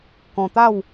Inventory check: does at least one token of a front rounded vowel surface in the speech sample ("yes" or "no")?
no